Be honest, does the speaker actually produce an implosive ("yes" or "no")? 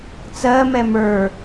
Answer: no